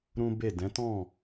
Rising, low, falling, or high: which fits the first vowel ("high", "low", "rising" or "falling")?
high